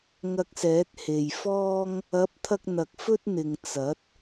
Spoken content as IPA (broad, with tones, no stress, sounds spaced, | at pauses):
ŋ ɐ˧ k̚ s ɛː˨˥ t̚ h e˨ j f ɔː˥ ŋ | ɐ˨˥ p̚ t̪ʰ ɐ˧ k̚ n̪ ɐ˨ k̚ f ɵ˥ t̚ n̪ ɪ˨ ŋ t͡s ɐ˨˥ t̚